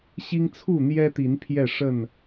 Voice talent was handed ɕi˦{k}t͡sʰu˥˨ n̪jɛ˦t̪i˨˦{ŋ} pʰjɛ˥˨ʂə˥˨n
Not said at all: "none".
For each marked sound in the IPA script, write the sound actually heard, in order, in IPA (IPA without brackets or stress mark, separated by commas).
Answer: ŋ, n